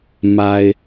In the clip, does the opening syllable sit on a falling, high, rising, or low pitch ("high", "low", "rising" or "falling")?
low